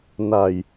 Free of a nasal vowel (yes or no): yes